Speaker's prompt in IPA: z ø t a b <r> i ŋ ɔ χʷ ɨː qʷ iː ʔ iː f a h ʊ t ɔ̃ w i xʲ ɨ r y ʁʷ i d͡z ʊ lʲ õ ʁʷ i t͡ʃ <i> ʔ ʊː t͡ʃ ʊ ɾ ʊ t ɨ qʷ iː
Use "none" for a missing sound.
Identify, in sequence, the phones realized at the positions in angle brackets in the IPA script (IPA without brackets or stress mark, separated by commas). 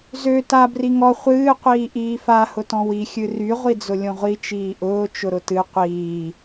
r, iː